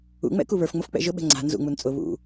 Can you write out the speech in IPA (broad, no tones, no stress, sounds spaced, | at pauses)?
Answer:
ṵ ŋ͡m ɛ̰ k u β ə˞ f ŋ͡m ʊ f k͡p ɛ̰ ʒ ʊ ɓ ɛ̤ ŋ͡ǀ a̤ n z ṵ ŋ͡m u n t͡sʼ ʊ β ṵ